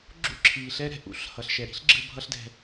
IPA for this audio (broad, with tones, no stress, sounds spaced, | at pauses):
ɡ͡ǁ ṵ˥ ǁʰ iː˩ ɬ ɛ˥ ɾ ɛ̤˧ ʔ ṵ˥ ɬ h ʌ˩ ɬ ʃ ɛ˩ ɾ i̤˥ ɬ ɡ͡ǁ ɯ˧ bʱ ʌ˥ ɬ d ɛ̤˧